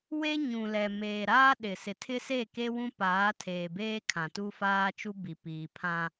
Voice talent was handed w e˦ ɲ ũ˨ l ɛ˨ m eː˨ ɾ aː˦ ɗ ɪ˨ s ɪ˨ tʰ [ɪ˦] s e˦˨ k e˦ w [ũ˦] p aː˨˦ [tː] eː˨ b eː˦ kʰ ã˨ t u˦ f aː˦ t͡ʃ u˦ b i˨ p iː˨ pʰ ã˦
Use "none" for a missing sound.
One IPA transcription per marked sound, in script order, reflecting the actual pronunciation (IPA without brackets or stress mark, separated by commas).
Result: ɪ˦, ũ˦, tʰ